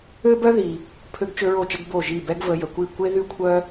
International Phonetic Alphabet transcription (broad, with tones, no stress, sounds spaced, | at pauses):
ø˦ b œ˦ ð i˨ | pʰ ø˦ ɡ t͡ʃ ø˦ ɹ o˦˨ t͡ʃ ə˦ ɡ b o˦˨ ʒ i˦˨ b ɛ˦ ɡ v ə˧ j ə˨ kʷ i˦˨ kʷ e˦ ð y˦ kʷʰ œ˦